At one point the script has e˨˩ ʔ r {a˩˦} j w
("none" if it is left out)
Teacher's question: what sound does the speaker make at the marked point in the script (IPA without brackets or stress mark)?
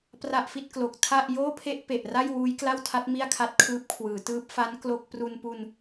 a˥˩